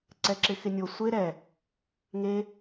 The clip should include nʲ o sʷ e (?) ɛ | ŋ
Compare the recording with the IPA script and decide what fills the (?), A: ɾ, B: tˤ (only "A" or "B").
A